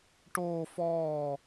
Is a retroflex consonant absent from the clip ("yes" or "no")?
no